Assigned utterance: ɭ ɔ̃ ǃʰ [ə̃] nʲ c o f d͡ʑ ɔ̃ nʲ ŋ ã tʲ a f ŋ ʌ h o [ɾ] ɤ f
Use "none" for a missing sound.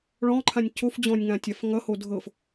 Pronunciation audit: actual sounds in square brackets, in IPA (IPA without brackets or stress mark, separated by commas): ã, dʱ